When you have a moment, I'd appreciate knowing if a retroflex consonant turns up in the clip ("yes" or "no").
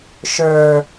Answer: no